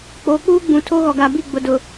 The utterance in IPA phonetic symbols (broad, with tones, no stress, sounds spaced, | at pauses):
k͡p oː˨ k͡p uː˦ ɡ͡b ũ˨ tʰ o˦ ɣ ɔ˨ ɡ a˨ b i˦˨ ɡ͡b ʊ˨ d ʊ˨